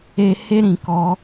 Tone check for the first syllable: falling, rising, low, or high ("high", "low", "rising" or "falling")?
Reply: high